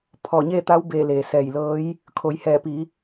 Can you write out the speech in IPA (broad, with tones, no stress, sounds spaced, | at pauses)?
pʰ ɔː˧˩ ɲ e˥˨ t̪ a˧˥ w b e˧˩ l eː˩ s ɛː˧˩ j l ɤː˧˥ j | kʰ o˩˧ j h ɛː˧˩ p i˩˧